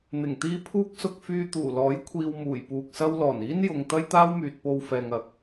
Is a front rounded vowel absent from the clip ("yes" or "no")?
no